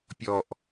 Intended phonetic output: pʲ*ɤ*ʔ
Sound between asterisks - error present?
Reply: yes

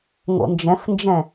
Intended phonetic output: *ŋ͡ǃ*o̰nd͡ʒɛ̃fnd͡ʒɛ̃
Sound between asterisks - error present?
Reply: yes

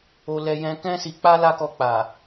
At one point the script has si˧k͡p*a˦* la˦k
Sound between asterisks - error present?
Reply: no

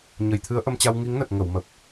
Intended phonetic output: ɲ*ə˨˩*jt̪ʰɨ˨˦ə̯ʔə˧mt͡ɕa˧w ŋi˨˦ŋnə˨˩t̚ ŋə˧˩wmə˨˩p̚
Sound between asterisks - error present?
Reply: no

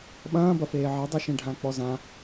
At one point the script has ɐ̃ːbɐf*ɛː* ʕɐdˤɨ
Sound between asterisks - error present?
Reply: yes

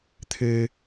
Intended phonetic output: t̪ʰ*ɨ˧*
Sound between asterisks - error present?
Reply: no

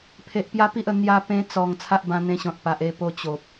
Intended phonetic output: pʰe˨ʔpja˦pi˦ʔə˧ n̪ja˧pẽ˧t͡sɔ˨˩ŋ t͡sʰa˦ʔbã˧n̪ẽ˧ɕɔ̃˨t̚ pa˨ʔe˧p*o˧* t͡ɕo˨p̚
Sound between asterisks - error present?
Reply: no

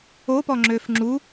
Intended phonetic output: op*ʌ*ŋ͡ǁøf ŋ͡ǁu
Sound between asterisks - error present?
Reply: yes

